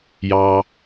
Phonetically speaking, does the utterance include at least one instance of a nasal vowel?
no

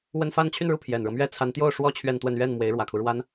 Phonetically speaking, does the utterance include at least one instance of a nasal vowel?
no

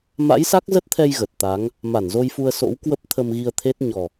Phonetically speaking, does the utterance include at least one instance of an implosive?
no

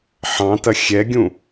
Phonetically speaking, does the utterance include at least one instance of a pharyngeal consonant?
yes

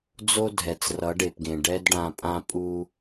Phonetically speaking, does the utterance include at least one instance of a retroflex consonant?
yes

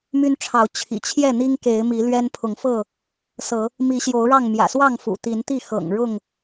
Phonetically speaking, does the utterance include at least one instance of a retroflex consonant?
yes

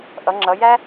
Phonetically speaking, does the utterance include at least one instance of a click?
yes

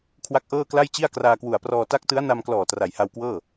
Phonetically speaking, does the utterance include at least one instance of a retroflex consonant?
no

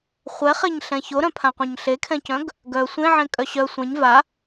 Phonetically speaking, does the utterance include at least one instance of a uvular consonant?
yes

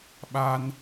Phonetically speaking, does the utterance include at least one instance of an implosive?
yes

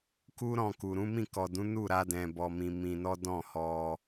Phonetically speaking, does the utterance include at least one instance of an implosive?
no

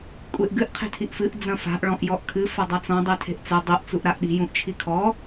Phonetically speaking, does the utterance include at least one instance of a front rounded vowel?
no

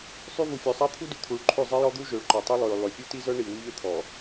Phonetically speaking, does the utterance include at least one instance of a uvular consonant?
no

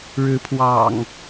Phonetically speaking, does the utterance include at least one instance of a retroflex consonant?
yes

